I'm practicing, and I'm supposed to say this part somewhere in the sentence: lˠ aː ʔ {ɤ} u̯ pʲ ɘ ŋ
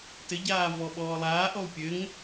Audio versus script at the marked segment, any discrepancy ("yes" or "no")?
yes